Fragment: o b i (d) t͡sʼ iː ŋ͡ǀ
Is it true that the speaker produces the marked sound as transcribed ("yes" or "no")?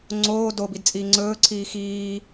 yes